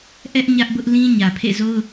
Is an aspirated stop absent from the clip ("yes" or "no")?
no